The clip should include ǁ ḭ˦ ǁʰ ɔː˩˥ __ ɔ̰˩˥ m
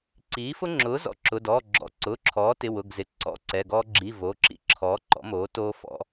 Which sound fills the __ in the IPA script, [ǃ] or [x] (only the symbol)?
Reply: ǃ